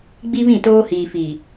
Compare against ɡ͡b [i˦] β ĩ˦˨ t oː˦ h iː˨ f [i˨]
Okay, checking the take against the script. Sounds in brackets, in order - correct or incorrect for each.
correct, incorrect

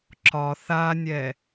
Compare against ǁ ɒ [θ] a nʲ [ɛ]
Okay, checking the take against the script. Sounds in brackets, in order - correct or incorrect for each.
correct, correct

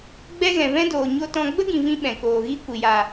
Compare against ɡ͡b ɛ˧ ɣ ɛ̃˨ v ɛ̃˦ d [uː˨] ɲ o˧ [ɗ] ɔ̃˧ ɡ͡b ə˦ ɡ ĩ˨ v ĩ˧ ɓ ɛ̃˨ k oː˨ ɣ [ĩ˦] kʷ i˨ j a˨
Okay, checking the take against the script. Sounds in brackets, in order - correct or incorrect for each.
incorrect, incorrect, incorrect

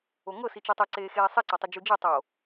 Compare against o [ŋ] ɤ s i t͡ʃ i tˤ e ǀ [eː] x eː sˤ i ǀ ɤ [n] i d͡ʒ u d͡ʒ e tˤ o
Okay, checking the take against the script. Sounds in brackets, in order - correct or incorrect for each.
correct, correct, incorrect

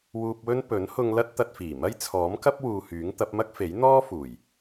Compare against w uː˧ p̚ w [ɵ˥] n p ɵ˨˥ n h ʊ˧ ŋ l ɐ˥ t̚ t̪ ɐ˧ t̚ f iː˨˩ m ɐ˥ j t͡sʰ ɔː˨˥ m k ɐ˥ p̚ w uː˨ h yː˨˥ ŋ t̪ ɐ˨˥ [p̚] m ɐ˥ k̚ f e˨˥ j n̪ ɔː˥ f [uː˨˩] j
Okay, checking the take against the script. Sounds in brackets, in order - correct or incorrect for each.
correct, correct, correct

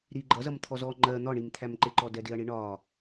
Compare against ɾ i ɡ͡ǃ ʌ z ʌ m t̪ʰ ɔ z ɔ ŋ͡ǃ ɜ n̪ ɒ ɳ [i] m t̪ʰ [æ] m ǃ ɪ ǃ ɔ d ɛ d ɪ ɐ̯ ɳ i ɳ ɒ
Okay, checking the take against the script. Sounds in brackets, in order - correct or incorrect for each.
correct, correct

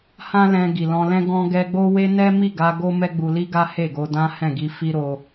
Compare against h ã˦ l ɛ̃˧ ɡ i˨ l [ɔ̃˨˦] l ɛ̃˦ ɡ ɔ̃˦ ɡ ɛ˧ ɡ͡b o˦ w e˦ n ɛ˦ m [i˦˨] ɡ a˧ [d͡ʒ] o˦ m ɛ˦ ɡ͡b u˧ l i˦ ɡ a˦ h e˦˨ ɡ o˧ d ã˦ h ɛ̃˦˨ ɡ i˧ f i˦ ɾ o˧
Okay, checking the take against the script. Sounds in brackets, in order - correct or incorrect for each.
incorrect, correct, incorrect

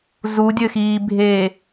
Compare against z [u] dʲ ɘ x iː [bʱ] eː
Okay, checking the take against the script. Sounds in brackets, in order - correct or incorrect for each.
correct, correct

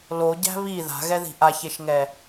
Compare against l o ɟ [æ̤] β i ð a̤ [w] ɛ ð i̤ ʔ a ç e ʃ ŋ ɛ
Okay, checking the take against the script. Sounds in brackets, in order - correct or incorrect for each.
correct, incorrect

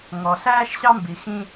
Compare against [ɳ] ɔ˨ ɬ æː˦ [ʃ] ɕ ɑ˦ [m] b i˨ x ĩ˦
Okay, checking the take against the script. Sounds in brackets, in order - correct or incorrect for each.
incorrect, correct, correct

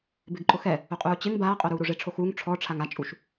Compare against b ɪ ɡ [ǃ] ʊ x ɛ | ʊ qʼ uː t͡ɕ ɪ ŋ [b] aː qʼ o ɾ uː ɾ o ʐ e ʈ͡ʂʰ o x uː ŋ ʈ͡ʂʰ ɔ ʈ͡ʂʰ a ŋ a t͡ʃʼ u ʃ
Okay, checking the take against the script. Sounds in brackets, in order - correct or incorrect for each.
correct, correct

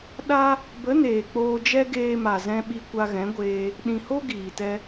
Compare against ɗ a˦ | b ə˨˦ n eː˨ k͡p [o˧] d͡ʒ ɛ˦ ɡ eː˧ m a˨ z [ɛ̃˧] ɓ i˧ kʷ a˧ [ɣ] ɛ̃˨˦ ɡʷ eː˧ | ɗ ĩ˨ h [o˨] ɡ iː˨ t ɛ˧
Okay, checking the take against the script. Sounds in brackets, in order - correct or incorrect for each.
incorrect, correct, correct, incorrect

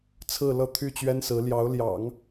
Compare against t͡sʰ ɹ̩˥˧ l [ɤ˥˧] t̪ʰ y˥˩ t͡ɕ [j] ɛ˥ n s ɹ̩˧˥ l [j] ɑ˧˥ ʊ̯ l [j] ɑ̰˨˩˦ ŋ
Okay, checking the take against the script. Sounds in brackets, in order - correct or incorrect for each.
correct, incorrect, correct, correct

